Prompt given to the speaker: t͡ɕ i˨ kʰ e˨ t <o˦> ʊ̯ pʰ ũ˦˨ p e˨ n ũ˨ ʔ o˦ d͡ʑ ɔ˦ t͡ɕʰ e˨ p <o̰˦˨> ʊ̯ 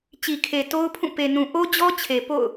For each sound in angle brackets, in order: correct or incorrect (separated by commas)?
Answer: correct, correct